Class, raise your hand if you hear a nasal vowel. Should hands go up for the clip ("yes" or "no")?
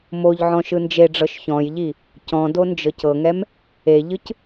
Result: yes